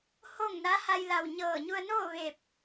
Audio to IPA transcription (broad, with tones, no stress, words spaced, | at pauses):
ho˥˨ŋ na˧˥ha˧jla˧˩w ɲɤː˧˩ɲu˧ə̯noː˥˨ ʋeː˧˩p̚